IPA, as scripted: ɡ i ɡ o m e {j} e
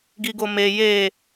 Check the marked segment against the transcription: correct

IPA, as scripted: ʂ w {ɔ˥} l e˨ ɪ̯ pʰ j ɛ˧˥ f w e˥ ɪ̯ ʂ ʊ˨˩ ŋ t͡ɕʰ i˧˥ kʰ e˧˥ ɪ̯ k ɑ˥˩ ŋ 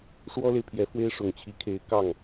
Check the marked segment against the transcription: correct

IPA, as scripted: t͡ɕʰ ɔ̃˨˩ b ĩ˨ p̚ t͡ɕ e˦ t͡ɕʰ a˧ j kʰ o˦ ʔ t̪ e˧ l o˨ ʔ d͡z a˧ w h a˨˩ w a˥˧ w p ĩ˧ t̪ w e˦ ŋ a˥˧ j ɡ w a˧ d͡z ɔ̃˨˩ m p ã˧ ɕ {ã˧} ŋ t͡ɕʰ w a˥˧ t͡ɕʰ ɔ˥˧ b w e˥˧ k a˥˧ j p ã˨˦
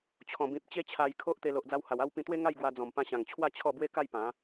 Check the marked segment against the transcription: incorrect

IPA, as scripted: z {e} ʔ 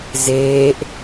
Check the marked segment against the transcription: incorrect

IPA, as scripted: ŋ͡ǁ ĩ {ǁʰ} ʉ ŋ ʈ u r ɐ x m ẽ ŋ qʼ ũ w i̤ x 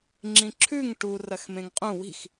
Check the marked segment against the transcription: correct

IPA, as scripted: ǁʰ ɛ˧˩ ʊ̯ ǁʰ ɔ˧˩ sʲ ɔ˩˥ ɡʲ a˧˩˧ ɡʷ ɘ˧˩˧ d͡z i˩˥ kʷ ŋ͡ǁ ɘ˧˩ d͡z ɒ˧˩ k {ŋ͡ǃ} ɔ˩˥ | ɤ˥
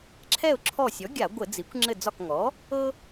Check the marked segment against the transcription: incorrect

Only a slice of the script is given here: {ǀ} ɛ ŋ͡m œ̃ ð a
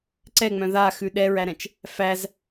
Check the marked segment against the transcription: correct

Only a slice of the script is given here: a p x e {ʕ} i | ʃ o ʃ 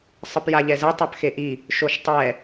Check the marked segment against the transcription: incorrect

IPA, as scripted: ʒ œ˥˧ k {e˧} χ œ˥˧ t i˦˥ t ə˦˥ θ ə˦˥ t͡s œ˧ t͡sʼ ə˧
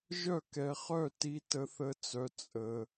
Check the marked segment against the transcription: incorrect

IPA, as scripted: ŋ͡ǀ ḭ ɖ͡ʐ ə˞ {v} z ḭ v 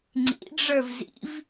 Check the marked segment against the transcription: correct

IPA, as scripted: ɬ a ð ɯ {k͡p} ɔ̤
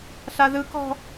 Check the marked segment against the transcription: incorrect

